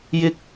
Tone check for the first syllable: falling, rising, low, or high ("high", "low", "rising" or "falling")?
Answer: high